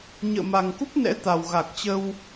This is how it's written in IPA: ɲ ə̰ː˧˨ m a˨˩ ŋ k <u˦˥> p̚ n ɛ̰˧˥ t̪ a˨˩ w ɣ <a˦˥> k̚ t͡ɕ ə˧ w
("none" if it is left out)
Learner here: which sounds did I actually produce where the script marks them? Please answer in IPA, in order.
u˦˥, a˨˩

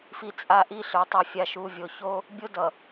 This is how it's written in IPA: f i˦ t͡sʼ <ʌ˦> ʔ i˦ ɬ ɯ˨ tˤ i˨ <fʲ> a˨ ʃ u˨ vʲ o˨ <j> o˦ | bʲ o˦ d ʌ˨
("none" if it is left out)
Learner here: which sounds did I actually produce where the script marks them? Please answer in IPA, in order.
a˦, fʲ, ç

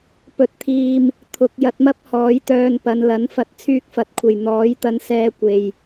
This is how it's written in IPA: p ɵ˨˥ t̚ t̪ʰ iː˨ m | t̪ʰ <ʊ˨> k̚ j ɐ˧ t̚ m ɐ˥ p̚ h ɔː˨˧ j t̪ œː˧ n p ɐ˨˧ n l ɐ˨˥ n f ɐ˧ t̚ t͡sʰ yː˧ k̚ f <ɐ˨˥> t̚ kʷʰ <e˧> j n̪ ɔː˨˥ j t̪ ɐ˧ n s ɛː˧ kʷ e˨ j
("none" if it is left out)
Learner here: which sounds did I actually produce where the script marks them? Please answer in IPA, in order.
ʊ˨, ɐ˨˥, e˨

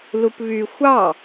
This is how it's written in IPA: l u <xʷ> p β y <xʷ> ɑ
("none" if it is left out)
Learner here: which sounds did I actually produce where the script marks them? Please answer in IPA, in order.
none, xʷ

